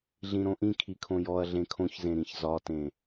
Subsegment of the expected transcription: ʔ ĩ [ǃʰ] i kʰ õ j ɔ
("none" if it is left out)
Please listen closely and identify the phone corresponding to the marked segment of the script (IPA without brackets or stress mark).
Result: kʰ